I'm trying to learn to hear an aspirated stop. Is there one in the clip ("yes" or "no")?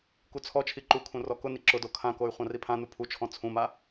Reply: yes